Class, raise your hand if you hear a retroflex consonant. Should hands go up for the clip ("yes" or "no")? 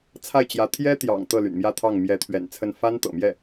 no